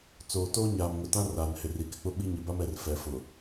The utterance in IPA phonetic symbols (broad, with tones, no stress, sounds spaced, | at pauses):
t͡s oː˨ t oː˦ ɲ aː˨ m ŋ ʊ˨ t ã˦ r aː˨ n h ɪ˨ r i˨ k ɪ˨ k͡p ʊ˦ ɓ i˦ ɲ ɪ˨ b a˦ m ɛ˨ r f ɛ˨ f ʊ˨